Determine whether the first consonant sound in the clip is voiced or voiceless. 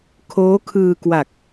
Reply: voiceless